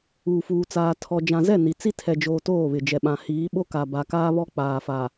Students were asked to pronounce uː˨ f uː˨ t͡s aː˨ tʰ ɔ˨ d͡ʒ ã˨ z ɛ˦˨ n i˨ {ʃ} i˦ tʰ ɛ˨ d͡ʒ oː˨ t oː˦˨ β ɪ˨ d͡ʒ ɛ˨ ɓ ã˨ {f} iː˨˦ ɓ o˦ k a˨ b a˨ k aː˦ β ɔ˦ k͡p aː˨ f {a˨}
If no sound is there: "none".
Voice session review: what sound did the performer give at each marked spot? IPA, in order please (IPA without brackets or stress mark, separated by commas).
t͡s, h, a˨